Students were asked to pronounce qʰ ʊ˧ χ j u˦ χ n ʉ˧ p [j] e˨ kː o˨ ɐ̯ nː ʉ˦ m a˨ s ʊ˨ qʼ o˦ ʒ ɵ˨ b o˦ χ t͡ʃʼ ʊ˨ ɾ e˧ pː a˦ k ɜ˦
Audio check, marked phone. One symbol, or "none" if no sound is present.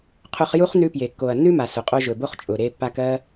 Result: j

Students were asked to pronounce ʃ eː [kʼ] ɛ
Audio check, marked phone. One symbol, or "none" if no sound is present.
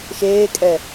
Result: kʼ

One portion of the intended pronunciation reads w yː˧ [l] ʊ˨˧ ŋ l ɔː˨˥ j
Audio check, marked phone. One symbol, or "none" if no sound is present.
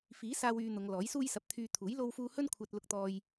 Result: n̪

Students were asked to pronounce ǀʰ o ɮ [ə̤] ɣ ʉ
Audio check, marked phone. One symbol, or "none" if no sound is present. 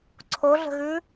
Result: ə̤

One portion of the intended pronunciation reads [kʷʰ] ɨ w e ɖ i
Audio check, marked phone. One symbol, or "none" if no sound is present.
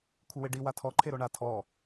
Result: kʷʰ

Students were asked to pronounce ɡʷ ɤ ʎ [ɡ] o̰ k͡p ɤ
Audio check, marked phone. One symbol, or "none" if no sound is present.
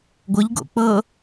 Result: ɡ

